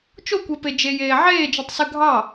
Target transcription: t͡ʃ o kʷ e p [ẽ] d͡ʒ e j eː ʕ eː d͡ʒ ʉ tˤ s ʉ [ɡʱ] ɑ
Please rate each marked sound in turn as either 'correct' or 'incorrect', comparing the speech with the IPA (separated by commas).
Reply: incorrect, correct